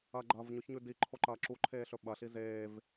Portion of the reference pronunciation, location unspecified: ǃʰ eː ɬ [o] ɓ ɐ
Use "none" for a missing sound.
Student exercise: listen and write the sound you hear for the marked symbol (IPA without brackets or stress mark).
ɵ